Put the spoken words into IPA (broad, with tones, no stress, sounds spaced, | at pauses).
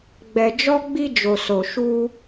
ɡ͡b ɛ˨ d͡ʒ ɔ˧ ɡ͡b i˧ d͡ʒ o˨ s o˨ ʃ u˧